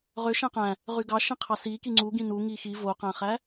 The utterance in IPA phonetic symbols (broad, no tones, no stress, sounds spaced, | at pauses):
ʁ ø ʃ æ̃ q æ̃ | ʁ y ɡ ɑ ʃ ĩ qʰ ɑ s i k i ŋ͡ǀ u ɡ ĩ n u ŋ i x i v o q æ̃ χ æ